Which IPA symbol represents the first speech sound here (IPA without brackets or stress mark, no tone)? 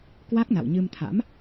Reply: k